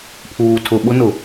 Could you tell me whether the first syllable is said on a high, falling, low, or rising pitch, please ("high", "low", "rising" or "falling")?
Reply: low